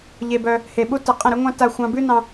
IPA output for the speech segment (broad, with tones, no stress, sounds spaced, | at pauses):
ʎ e˧ b œ˧ | h e˨ ɓ u˧ t ə˨ qʼ ə̃˦˨ ɾ ʉ˦ ŋʷ ɑ̃˦ t a˧ xʷ ɑ̃˧ b ʉ˦ n ɑ̃˧